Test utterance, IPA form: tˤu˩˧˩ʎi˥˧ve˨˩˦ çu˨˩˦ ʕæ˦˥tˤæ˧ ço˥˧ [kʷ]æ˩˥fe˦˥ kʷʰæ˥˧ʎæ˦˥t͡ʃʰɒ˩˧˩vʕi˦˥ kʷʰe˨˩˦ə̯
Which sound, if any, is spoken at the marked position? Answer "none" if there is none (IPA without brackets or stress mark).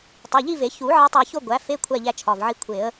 ɡʷ